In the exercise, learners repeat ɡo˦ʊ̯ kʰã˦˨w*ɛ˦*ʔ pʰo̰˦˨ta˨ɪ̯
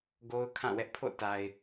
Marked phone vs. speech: correct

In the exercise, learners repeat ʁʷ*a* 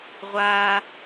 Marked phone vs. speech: correct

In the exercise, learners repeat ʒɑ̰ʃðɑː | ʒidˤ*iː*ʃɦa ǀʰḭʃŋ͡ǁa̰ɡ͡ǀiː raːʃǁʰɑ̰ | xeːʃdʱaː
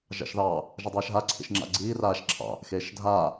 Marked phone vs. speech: incorrect: eː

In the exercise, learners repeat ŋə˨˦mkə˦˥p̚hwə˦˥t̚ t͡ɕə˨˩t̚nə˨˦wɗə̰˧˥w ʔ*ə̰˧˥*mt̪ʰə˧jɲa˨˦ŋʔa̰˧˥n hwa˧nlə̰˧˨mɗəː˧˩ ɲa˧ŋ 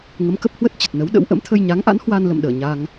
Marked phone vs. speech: correct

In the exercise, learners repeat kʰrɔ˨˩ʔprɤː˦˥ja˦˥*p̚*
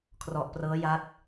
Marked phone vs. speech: incorrect: t̚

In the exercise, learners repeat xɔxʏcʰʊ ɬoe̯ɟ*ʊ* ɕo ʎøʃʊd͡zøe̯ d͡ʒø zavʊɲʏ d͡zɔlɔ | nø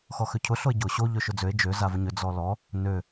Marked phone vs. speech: correct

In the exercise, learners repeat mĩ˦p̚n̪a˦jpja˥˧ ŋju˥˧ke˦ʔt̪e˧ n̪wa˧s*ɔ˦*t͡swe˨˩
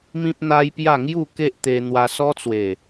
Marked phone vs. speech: correct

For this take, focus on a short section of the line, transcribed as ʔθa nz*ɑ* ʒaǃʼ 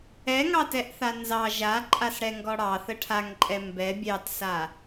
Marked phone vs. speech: correct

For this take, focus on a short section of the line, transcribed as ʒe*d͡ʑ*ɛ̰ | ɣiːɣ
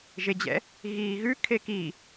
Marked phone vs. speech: correct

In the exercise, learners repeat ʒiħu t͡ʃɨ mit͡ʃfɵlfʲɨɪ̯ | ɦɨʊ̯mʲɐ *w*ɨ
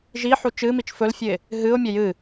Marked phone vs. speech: incorrect: j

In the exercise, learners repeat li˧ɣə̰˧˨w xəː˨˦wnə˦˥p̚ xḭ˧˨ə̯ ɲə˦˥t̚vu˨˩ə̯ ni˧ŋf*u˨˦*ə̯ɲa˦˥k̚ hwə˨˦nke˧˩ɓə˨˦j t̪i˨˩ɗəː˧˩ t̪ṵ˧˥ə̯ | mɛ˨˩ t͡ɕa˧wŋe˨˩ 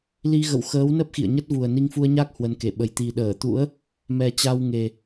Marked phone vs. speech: incorrect: u˧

